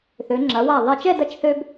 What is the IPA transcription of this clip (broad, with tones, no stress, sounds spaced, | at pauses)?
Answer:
θ ø˩˧ ŋ͡ǁ ɐ˩˧ w a˧˩ ðˤ i˧˩ t͡ʃ ɛ˥˧ d ɐ˧ t͡ʃ θ ø˧ b